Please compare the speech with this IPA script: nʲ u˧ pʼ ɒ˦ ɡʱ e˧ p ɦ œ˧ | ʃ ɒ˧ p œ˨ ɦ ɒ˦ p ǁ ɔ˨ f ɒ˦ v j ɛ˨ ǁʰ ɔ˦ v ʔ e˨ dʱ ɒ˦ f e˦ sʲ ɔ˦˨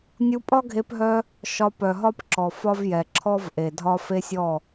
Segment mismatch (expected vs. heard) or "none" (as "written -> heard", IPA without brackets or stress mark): none